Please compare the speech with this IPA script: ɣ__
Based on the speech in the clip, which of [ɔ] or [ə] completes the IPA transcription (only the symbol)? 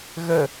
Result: ə